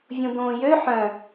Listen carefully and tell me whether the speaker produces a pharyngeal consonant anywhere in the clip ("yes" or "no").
yes